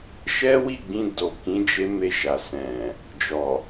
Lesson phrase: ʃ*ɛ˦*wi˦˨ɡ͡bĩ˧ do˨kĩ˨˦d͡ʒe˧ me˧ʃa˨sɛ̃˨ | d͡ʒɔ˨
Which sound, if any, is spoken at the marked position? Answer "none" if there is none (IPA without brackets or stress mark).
ɛ˦